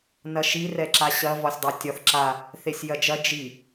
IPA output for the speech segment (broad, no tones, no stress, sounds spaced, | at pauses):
n ɐ ʃ i r ɛ ǁ a ɕ ɐ v ɒ sʲ dˤ a tʲ ɒ θ ǁ a | θ e sʲ j ɐ d͡ʒ ɐ d͡ʒ i